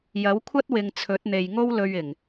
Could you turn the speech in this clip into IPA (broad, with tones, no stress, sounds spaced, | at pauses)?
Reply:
j ɐ˨˥ w kʷʰ ɐ˥ t̚ w ɪ˨ ŋ t͡sʰ ɵ˨˥ t̚ n̪ e˨ j ŋ o˥ w l ɵ˧ ɥ ɪ˨˩ ŋ